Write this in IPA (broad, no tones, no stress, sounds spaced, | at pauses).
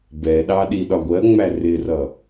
b ɛ ɗ ɑ ɗ i ɗ ɒ ɡʷ ɜ ŋ͡m æ r ɪ r ʌ